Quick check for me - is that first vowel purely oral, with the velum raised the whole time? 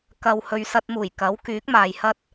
yes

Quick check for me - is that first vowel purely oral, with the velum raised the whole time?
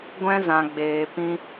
no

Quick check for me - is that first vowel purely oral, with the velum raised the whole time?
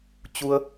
yes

